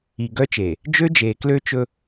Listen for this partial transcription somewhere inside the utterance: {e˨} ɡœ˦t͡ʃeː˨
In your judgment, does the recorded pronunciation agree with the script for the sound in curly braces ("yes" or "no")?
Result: no